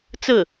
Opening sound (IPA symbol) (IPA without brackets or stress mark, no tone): t͡s